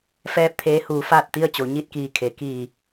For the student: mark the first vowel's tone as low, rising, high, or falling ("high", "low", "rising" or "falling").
falling